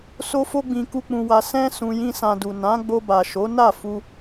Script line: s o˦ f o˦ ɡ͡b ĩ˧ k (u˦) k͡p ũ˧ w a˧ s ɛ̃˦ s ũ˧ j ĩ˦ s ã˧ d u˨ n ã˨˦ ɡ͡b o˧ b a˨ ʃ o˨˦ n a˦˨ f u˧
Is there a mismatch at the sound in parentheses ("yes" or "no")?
no